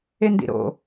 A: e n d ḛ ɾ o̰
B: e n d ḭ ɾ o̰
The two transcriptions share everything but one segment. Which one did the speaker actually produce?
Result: B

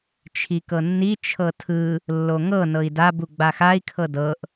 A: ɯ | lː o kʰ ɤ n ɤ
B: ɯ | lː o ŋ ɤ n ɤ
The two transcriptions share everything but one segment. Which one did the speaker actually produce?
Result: B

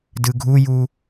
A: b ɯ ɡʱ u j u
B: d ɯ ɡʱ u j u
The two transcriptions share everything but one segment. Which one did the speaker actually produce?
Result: B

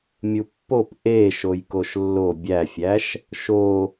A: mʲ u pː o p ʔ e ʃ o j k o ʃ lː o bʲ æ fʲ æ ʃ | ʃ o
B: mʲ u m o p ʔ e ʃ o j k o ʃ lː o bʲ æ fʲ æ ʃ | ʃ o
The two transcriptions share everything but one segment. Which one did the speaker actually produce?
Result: A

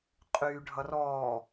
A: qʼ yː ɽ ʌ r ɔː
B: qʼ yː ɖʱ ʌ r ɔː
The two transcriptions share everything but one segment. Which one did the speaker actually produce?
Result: B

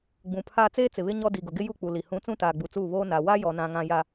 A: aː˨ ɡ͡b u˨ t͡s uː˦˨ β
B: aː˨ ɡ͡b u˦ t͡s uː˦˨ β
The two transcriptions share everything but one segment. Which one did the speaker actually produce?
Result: A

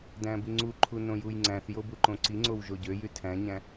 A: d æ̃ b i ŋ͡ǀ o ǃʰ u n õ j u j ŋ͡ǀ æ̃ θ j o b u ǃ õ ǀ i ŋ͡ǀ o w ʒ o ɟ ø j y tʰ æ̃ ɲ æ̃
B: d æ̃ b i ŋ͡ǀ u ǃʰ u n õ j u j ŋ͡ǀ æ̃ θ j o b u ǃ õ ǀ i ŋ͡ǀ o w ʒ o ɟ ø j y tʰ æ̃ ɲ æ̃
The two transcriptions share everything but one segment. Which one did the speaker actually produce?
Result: B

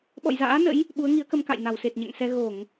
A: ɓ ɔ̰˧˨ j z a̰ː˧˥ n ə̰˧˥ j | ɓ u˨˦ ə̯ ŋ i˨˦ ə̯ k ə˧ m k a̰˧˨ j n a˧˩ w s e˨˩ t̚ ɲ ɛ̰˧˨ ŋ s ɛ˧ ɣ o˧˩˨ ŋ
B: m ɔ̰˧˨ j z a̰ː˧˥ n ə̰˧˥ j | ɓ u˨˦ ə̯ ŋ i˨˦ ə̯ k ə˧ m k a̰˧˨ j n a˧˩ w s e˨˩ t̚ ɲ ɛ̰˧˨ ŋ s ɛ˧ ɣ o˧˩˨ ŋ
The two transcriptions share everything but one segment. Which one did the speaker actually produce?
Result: A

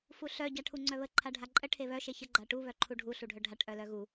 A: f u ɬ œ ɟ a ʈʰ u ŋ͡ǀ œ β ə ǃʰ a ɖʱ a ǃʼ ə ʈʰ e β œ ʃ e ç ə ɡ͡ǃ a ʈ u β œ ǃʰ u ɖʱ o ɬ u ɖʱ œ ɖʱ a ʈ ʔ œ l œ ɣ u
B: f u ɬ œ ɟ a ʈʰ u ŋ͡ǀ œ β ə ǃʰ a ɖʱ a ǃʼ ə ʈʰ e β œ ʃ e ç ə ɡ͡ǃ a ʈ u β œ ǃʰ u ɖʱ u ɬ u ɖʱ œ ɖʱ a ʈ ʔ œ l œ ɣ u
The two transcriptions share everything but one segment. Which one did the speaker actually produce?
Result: B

